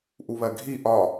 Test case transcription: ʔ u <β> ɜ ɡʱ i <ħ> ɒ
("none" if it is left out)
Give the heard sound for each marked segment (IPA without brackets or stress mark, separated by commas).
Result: β, ʔ